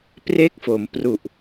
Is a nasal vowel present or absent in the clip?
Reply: absent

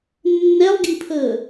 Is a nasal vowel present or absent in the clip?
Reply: absent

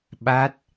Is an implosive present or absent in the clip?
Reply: present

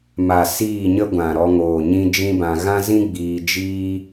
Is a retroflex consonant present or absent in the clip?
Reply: absent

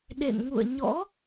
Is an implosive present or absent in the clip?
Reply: present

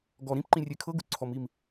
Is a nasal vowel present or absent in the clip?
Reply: present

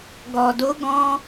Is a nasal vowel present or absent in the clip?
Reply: present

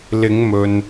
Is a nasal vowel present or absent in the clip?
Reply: absent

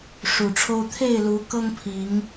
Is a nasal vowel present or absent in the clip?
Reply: absent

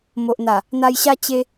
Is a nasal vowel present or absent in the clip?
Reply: absent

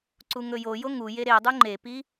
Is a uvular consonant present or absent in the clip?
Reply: absent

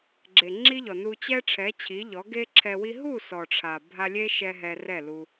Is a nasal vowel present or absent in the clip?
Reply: absent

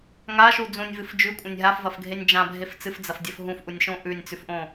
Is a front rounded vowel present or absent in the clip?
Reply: absent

